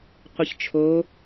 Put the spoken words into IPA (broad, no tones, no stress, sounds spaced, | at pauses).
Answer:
qʷ ə ç t͡ʃʰ o